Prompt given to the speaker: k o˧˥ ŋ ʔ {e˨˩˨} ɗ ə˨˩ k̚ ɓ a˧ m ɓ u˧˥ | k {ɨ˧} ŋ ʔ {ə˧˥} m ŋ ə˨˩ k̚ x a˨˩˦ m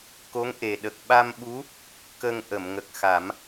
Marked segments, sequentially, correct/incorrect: incorrect: e˨˩, incorrect: ə˧, incorrect: ə˨˩˨

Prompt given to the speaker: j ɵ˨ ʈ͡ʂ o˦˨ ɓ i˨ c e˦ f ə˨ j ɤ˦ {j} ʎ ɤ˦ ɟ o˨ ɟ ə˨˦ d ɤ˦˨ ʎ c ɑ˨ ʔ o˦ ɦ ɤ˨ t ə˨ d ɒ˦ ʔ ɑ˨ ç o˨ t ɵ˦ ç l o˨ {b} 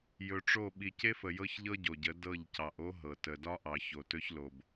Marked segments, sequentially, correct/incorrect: incorrect: ç, correct

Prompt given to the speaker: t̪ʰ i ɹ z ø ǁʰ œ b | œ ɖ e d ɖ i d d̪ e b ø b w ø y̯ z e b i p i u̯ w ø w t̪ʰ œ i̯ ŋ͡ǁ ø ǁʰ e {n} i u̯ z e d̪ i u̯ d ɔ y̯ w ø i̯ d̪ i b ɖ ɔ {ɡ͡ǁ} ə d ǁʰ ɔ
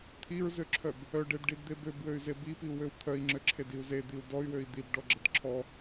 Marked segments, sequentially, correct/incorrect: incorrect: d, correct

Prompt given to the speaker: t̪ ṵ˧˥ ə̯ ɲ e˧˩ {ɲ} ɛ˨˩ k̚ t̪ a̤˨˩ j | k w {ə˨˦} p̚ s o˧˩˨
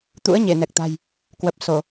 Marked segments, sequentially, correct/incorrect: incorrect: n, incorrect: ə˨˩

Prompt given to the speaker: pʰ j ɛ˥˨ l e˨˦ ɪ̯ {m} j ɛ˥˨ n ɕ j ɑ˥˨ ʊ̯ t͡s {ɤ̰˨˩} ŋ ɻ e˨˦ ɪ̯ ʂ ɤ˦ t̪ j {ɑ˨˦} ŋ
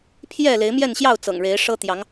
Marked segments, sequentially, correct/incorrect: correct, correct, correct

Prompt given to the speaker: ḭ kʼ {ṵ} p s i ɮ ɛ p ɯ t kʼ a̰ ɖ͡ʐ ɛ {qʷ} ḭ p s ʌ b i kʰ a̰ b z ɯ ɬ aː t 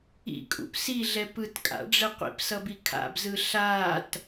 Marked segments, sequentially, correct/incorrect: correct, correct

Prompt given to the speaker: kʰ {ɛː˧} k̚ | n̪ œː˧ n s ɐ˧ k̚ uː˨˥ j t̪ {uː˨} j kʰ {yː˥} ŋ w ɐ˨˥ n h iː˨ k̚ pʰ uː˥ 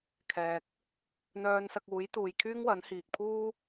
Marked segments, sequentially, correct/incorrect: incorrect: ɛː˨, correct, correct

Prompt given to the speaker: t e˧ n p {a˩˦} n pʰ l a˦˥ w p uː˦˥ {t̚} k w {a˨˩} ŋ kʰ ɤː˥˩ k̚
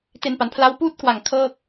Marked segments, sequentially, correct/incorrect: correct, correct, correct

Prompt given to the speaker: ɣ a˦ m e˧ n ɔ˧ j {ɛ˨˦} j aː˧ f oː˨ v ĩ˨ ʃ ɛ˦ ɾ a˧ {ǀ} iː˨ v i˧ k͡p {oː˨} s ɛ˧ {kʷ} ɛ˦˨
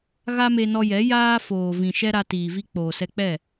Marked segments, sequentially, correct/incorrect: correct, incorrect: t, correct, incorrect: k͡p

